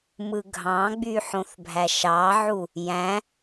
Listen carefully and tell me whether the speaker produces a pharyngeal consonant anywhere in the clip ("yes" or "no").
yes